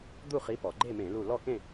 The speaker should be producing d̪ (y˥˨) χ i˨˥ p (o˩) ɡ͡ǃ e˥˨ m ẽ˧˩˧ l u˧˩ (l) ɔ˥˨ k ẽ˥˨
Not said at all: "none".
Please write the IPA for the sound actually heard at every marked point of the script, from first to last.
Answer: u˥˨, ɔ˩, l

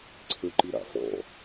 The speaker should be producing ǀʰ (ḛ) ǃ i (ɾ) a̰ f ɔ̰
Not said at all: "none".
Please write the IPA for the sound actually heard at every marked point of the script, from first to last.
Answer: e, ɾ

